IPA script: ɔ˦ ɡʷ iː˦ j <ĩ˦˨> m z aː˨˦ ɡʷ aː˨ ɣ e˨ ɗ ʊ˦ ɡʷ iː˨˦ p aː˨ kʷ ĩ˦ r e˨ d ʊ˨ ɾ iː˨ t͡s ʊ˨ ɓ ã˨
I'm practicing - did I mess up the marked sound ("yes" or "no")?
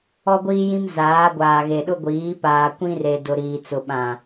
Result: yes